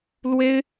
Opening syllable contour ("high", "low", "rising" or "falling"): high